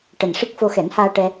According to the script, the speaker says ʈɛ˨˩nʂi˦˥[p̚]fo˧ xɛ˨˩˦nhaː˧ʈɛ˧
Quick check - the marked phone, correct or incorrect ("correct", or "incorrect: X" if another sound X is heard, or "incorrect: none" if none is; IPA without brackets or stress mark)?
incorrect: k̚